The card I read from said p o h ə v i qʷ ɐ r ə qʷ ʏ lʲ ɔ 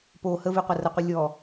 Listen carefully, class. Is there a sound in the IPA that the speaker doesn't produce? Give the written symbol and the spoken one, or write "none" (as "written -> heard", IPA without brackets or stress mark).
ʏ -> ə